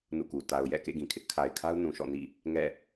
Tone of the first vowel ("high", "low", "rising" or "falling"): falling